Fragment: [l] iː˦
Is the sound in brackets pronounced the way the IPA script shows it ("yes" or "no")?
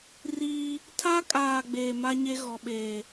no